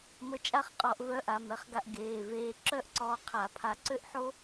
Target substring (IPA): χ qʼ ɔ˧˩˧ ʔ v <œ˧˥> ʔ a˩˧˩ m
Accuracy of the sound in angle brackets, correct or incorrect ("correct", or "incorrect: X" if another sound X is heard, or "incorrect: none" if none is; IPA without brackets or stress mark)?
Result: correct